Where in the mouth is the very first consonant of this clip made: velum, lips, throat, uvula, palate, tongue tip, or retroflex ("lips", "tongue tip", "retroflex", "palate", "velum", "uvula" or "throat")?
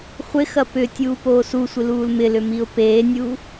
uvula